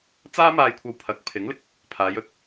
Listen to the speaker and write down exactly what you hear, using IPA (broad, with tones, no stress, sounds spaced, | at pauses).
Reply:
t͡s aː˥ m aː˧ j kʷʰ ɐ˧ w pʰ ɐ˨˥ k̚ pʰ ɪ˨˥ ŋ l ɪ˧ k̚ | pʰ aː˨˧ j ɵ˨ t̚